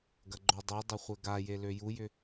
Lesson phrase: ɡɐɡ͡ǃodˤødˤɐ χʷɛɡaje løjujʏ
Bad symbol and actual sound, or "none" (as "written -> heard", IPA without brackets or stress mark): none